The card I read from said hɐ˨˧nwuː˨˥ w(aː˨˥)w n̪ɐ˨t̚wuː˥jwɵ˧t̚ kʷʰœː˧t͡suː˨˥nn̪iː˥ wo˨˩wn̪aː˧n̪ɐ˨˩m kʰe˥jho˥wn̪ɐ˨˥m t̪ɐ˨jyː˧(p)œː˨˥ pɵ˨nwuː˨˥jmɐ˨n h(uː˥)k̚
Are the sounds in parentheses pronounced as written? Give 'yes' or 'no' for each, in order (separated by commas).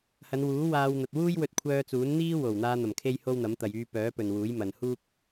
no, yes, yes